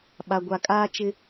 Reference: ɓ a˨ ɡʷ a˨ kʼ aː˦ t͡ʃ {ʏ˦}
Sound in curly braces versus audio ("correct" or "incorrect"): incorrect